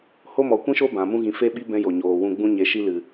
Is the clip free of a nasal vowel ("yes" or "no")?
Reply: no